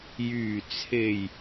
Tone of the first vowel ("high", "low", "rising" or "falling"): low